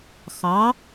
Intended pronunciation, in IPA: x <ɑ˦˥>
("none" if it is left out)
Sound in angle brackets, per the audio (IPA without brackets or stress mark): ɑ˨˥